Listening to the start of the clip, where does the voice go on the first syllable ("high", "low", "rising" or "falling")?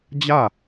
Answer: falling